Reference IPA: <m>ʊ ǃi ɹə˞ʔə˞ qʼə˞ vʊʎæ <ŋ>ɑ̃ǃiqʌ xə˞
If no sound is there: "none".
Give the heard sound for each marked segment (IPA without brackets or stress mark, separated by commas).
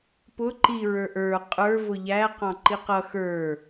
p, q